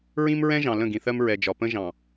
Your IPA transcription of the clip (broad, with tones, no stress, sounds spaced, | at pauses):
ɹ ĩ˦ m ɹ ɛ̃˦ ʒ ɑ̃˨ l ə̃˦˨ ɡ ĩ˨ θ ɜ˦ m ɹ ɛ˨ d͡ʒ ɒ˨ p ə̃˦ ʒ ɑ̃˨